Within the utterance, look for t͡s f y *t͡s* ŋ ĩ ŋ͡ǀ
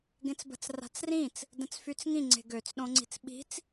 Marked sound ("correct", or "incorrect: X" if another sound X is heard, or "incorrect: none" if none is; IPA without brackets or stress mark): correct